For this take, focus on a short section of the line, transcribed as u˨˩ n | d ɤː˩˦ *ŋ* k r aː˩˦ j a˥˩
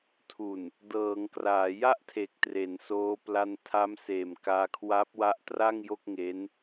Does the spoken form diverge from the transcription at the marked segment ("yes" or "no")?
no